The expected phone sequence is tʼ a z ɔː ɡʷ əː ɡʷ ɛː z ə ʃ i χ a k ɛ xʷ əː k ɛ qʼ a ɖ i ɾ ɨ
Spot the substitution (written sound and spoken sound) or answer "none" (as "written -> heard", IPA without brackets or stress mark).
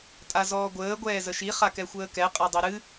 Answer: ɖ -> dˤ